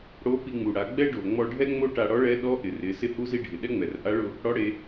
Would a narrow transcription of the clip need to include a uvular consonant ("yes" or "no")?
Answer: no